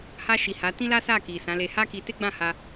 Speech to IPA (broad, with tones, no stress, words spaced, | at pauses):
ha˧ʃi˨ ha˨˦ tĩ˦la˦sa˦˨ ki˨sã˨˦le˧ ha˦ ki˧ te˦ɡ͡bã˦˨ ha˧